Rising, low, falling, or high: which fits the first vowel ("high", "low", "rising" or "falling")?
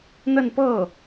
falling